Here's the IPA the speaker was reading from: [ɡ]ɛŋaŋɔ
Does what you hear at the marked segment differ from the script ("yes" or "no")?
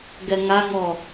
no